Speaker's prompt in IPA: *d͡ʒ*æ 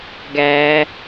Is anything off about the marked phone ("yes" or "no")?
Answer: yes